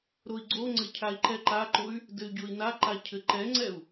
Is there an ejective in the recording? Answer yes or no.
no